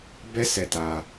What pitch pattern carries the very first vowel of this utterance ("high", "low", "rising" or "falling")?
high